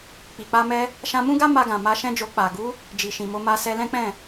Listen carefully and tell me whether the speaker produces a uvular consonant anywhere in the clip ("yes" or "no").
no